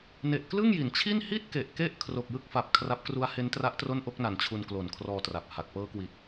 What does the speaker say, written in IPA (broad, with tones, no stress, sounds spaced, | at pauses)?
n e˨˩ ʔ k l ɯ˥˩ ŋ j i˩˦ n t͡ɕʰ i˥˩ n h i˥˩ t̚ k e˨˩ ʔ k e˦˥ ʔ kʰ r o˨˩ k̚ j ɯ˥˩ k̚ f a˨˩ p̚ kʰ r a˦˥ p̚ k r u˦˥ a̯ h e˦˥ n t r a˦˥ ʔ t r o˥˩ n ʔ o˥˩ k̚ n a˨˩ n t͡ɕʰ u˧ n k l o˨˩ n kʰ r ɔː˧ t r a˨˩ p̚ h a˨˩ k̚ p ɤː˦˥ k w i˨˩ t̚